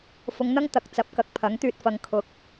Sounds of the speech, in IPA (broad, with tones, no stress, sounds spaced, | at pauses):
f ʊ˨˧ ŋ n̪ ɐ˥ ŋ t̪ ɐ˨ k̚ t͡s ɐ˨˥ p̚ k ɐ˨˥ k̚ pʰ ɐ˨˥ ŋ t̪ yː˧ t̚ f ɐ˨˧ ŋ kʰ ʊ˨˥ k̚